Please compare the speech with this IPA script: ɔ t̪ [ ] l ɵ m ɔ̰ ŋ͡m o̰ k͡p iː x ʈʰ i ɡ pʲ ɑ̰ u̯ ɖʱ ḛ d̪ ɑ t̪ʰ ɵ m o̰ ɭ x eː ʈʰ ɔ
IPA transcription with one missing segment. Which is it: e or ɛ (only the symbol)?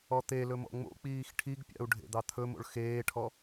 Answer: e